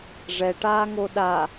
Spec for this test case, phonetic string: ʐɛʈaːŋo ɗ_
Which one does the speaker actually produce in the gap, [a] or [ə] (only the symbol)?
a